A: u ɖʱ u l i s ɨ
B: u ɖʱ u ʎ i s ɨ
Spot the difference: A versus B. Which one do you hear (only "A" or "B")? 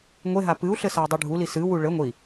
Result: A